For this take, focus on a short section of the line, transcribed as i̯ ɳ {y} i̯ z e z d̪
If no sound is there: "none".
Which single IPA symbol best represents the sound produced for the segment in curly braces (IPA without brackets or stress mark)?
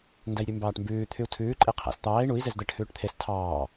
u